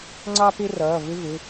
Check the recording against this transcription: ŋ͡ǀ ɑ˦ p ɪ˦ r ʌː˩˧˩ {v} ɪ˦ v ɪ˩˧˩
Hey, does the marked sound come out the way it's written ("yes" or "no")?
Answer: yes